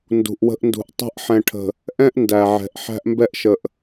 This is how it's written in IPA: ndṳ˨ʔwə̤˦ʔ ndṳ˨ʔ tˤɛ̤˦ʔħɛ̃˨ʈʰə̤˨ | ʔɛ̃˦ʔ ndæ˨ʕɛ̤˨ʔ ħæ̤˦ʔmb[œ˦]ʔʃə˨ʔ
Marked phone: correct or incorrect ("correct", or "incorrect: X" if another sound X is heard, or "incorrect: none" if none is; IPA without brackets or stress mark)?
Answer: incorrect: ɛ˦